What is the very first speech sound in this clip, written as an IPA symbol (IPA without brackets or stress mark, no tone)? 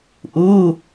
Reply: ʔ